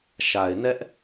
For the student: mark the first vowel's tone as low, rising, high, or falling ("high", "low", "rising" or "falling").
low